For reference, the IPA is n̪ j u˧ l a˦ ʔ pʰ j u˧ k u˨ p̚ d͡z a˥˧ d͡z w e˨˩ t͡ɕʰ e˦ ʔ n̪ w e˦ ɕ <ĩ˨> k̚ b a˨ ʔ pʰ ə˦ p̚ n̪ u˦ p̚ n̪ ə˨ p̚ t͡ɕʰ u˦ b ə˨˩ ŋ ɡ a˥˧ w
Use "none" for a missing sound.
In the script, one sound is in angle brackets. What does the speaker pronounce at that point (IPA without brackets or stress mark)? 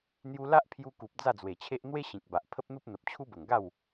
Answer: ĩ˨